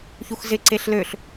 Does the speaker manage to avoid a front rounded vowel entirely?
no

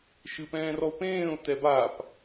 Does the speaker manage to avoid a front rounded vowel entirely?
yes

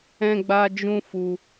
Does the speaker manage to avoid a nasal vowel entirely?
no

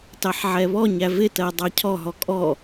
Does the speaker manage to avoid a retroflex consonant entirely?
yes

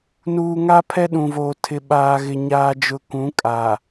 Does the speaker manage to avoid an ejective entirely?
no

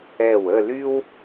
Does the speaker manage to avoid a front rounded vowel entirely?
no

